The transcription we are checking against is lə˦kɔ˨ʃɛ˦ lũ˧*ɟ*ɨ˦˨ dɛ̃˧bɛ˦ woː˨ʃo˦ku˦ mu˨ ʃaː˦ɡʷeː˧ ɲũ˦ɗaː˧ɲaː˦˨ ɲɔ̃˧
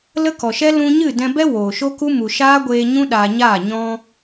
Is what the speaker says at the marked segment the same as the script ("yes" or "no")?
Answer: no